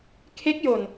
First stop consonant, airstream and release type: aspirated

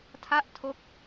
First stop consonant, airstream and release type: aspirated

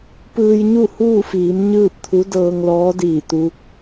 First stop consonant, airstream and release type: plain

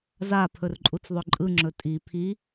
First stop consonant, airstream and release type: aspirated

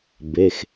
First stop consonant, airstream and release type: plain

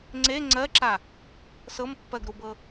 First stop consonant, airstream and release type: click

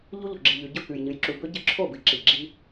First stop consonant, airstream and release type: click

